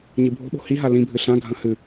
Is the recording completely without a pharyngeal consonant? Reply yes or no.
yes